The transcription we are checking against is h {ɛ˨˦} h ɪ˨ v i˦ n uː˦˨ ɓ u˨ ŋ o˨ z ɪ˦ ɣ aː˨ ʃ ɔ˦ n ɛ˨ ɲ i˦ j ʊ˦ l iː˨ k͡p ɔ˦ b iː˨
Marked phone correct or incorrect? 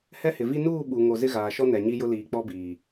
incorrect